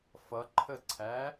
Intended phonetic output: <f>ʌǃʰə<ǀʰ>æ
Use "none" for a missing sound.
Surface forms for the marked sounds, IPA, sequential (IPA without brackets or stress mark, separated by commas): f, ǀʰ